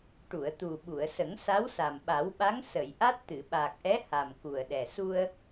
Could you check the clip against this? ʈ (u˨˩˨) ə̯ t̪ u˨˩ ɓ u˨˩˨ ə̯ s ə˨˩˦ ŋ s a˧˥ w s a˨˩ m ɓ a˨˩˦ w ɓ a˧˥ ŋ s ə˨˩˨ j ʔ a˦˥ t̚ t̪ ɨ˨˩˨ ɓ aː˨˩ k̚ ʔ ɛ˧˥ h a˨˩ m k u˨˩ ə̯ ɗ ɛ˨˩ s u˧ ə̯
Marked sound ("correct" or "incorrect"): correct